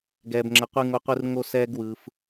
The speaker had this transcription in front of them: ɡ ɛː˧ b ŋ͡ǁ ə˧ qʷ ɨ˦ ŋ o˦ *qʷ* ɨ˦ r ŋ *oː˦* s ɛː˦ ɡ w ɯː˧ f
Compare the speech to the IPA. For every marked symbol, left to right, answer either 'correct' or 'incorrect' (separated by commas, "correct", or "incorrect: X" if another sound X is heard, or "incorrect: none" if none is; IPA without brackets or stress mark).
correct, incorrect: o˦